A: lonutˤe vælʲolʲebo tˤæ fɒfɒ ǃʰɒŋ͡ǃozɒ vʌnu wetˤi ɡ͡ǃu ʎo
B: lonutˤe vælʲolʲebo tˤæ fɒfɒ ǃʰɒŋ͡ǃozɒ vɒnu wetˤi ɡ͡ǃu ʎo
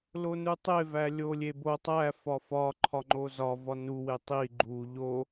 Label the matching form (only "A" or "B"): B